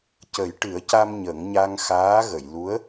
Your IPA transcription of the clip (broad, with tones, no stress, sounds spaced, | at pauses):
c ə˨˩˦ j ʈ ɨ˨˩˦ ə̯ c a˧ m ɲ ə˨˩˦ ŋ ɲ a˧ ŋ x aː˧˥ ɣ ə˨˩˨ j l u˧˥ ə̯